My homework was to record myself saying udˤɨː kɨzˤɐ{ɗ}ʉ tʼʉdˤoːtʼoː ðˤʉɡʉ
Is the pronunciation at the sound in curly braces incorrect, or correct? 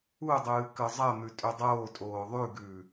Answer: incorrect